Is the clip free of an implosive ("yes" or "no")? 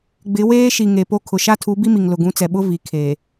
no